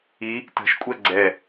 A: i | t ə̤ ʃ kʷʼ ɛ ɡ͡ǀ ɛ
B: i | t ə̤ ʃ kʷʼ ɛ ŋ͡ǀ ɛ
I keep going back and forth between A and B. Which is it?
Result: A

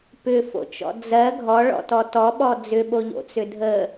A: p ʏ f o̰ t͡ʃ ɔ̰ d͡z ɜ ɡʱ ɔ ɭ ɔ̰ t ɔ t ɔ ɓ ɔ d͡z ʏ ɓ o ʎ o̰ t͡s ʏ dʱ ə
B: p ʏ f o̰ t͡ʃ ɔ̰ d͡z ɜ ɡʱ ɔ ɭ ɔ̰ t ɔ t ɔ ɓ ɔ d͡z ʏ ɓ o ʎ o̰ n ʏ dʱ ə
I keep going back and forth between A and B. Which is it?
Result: A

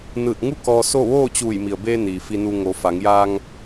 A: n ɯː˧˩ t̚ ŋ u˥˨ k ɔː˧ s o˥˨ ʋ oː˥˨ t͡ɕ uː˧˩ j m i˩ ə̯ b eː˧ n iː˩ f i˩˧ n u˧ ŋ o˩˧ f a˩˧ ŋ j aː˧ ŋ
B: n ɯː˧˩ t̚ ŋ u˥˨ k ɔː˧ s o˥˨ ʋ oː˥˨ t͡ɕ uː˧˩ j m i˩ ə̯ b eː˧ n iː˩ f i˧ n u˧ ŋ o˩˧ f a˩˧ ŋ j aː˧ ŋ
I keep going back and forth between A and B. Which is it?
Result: B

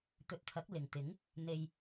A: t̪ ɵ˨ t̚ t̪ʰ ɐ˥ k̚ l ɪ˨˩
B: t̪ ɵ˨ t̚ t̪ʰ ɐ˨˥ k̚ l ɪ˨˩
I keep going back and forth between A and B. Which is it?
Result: B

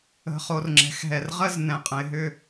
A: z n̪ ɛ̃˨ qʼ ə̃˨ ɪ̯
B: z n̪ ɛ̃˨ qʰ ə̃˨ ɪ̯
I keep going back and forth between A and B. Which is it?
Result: A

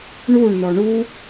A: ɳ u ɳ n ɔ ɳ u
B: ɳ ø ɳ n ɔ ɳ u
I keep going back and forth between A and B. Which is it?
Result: A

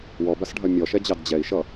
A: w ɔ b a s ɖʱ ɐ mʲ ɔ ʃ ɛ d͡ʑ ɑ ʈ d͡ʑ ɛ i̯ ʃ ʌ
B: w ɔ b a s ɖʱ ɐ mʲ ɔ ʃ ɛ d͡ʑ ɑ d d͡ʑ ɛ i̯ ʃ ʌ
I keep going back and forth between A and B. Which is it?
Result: B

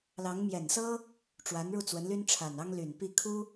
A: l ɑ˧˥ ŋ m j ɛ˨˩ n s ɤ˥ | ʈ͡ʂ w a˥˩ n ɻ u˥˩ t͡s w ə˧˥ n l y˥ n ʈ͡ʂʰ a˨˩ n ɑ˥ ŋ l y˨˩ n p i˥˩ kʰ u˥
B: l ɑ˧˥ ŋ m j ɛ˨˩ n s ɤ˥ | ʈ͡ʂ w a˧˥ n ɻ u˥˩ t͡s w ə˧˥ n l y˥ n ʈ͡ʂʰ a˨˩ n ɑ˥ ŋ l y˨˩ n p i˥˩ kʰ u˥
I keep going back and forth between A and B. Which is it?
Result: B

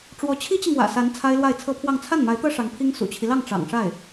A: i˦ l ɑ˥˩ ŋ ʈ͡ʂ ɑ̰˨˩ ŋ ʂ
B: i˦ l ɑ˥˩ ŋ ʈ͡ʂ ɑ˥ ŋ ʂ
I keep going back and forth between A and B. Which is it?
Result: A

